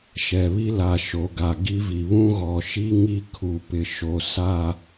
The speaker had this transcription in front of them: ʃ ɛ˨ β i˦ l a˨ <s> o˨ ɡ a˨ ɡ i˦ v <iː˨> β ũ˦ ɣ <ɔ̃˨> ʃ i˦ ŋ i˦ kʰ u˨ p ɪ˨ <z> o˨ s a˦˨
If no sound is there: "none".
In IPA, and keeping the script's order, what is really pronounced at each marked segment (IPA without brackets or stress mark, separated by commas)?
ʃ, i˨, ɔ˨, ʃ